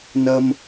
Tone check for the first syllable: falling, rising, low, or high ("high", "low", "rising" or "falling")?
low